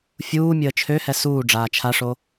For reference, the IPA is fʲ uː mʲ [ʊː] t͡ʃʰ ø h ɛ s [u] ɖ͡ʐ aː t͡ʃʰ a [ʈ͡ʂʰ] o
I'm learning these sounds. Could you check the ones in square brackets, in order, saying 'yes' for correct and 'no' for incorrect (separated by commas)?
no, no, no